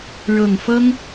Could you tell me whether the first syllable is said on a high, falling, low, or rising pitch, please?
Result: low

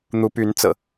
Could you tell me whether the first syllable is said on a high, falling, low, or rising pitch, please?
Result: rising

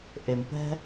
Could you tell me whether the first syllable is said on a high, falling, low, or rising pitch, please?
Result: low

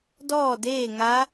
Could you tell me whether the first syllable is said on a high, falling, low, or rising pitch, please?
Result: falling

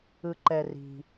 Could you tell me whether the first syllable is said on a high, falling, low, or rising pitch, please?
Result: low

